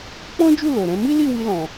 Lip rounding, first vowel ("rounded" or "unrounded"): rounded